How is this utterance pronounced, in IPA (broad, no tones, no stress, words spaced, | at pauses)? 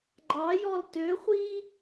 ɡ͡ǃɑjɔl tøχʷi